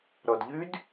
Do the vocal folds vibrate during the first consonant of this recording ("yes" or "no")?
yes